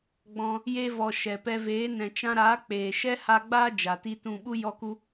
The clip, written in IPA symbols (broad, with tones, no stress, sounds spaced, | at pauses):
ɡ͡b ɔ̃˧ | j e˧ v ɔ˨ ʃ ɛ˨ p ɛ˧ v eː˨˦ n ɛ̃˨ t͡ʃ ã˧ ɾ aː˨˦ k͡p eː˨ ʃ ɛ˦ h a˧ ɡ͡b aː˦ d͡ʒ a˨ t i˦ t ũ˧ ɓ u˦ j ɔ˦ k u˦